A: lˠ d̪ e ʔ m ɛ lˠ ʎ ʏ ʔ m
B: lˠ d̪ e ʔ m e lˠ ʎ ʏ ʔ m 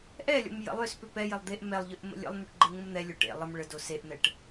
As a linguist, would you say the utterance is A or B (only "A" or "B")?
A